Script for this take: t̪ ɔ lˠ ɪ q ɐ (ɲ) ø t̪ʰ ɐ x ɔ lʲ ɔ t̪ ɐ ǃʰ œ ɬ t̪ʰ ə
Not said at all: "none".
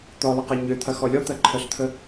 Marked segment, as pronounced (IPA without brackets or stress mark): ɲ